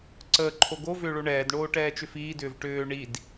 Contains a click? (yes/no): yes